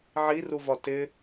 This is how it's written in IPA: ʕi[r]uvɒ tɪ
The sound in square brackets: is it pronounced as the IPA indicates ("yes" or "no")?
yes